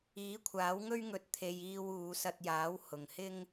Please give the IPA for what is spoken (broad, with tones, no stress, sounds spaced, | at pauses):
iː˨˥ kʷʰ aː˨˥ w ŋ ɵ˥ ɥ ŋ ɵ˧ t̚ t̪ʰ e˧ j iː˧ w uː˨˧ s ɐ˧ t̚ j aː˨˥ w h ʊ˨ ŋ h ɪ˥ ŋ